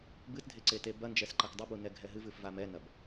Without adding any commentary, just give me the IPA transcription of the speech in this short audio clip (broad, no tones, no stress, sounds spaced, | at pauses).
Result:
b ɨ t dʱ e ǀ e t e b ɐ n d͡ʒ ɛ s ǃ ɐ k dˤ ɛ b u n ɛ ɡʱ ɛ ɦ ɨ v ɨ f v a m ɛ n ɐ b